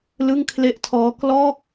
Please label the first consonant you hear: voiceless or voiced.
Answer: voiced